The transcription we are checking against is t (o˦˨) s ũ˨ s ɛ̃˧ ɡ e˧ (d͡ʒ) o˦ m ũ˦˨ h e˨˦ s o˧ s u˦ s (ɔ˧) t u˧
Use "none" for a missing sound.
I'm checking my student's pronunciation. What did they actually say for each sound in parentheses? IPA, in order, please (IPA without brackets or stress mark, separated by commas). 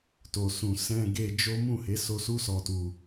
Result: o˨, d͡ʒ, ɔ˧